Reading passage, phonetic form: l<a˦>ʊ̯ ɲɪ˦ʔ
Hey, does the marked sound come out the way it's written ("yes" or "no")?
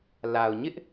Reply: no